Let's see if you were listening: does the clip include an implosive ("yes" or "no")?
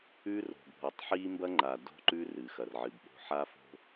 yes